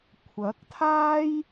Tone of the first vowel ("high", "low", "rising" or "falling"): rising